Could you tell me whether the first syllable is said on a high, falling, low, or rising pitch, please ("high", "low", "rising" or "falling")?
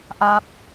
falling